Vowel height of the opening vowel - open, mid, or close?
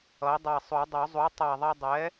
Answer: mid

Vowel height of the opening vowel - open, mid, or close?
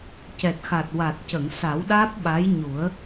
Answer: mid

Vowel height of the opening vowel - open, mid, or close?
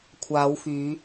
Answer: open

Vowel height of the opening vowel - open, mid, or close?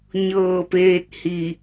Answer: mid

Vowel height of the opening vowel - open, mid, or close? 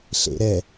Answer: mid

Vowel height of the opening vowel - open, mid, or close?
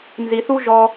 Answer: close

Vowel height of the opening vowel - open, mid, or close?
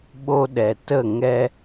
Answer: mid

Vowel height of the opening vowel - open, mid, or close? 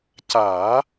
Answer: open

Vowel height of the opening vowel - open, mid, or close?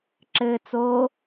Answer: mid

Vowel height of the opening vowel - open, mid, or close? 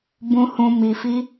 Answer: close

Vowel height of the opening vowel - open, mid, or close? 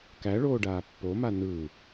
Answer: open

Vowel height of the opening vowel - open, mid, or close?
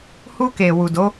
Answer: close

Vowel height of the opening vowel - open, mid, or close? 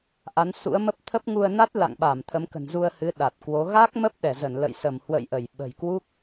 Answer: open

